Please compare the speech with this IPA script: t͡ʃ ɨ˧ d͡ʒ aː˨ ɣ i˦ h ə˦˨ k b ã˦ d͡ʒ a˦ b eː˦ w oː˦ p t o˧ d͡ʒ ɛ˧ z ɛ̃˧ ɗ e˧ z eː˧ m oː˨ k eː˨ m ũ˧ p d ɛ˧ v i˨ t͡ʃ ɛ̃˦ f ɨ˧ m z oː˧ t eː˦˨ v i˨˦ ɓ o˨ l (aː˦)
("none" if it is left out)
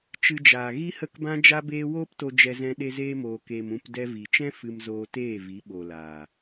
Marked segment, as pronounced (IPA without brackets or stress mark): aː˨